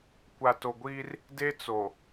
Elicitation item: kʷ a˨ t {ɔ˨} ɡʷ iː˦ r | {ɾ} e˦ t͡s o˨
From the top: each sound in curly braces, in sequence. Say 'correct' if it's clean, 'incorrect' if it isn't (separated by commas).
incorrect, incorrect